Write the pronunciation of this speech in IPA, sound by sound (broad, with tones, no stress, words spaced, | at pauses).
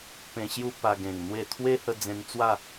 pẽ˧ɕju˦ pa˧ɡẽ˨˩ŋn̪we˥˧ t̪ʰwe˦hə˧ d͡zẽ˧nt͡swa˥˧